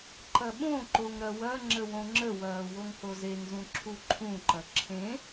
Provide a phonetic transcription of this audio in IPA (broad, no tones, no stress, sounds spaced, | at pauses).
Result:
ǃ ɐ ɓ õ ǃ o ŋ ɾ ɐ w ɐ ŋ͡ǁ ə w õ ŋ͡ǁ ə w ɐː w o ŋ h o z e ŋ z ũ ǁʰ u ǃʰ ũ ǃ ɐ ǁʰ ẽ